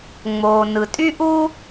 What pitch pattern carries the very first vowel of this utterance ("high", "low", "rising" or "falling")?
low